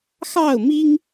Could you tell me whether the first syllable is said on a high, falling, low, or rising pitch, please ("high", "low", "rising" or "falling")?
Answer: falling